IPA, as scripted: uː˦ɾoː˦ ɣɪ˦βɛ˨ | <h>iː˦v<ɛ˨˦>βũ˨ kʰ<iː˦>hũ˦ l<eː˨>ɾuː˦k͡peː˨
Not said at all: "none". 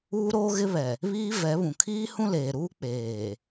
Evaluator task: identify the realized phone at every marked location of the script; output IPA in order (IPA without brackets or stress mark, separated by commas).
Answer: β, ɛ˨˦, iː˦, eː˨